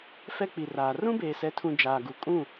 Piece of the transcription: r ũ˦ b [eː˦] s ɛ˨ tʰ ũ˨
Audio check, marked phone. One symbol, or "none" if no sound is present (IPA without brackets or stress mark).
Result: eː˨